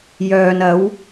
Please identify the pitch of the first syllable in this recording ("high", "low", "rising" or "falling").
low